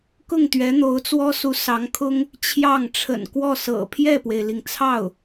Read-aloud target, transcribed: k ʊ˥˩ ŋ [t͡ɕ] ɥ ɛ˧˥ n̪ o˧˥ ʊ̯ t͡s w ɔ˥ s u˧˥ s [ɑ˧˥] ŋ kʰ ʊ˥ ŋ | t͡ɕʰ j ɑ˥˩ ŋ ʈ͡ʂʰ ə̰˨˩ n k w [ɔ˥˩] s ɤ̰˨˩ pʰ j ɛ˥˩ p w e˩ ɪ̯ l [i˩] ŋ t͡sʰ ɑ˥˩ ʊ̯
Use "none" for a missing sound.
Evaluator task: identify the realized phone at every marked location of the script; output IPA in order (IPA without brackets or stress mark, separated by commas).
t̪, ɑ˧˥, ɔ˥˩, i˩